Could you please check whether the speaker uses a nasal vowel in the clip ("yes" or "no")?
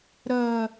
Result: no